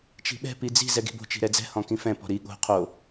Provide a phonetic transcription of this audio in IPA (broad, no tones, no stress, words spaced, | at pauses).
t͡ʃi̤ɓɛ̤ pid͡zi̤ zɛɡi̤bo̤ t͡ʃi̤ɾɛd͡zɛ̤ hɔ̃kĩfɛ̃ pɔ̤ɾi ɠo̤ qʰo